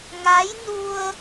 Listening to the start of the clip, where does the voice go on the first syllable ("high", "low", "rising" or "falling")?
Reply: rising